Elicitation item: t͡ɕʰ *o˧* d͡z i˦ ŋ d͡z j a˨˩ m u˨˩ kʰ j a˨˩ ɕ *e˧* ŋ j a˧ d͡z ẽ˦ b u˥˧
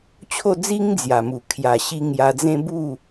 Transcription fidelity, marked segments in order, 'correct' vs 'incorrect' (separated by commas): incorrect, incorrect